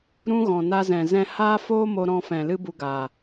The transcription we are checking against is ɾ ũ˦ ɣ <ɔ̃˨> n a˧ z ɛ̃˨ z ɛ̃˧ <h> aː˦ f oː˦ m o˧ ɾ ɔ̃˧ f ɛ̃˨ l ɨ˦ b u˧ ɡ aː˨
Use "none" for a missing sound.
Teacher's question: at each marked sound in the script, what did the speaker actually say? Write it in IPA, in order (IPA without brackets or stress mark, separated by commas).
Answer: ɔ̃˨, h